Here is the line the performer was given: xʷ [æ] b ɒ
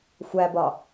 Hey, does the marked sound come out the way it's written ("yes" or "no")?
yes